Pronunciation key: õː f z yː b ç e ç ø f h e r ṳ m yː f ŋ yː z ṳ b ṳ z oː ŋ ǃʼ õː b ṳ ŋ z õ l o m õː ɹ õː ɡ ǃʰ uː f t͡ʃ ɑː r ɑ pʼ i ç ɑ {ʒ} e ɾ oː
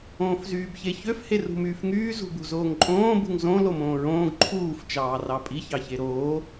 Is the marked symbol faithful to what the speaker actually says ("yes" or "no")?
no